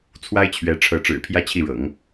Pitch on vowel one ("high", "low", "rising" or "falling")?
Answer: high